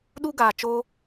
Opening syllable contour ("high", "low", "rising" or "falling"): high